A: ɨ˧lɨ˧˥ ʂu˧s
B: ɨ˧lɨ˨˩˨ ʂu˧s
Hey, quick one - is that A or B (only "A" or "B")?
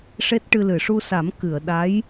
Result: B